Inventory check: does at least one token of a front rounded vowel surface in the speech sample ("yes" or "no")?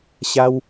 no